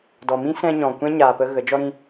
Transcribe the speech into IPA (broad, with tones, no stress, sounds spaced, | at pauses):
d ɔ˨ m ĩ˦ s ɛ̃˦ ɲ ɔ̃˨ kʷ ɛ̃˦ ɲ aː˨ p ə˧ ɣ ə˨˦ d͡ʒ ɔ˦ ɾ ĩ˧